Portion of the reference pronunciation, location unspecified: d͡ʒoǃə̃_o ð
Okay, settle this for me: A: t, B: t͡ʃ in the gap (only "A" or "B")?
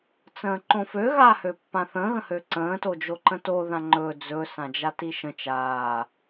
A